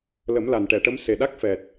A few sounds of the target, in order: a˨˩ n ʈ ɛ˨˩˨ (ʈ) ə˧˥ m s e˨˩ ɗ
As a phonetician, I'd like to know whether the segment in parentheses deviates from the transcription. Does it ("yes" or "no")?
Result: no